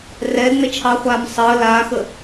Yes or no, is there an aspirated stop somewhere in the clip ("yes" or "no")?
yes